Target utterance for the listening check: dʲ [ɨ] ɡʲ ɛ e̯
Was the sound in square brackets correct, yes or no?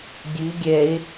yes